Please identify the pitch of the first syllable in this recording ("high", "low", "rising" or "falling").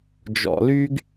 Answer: low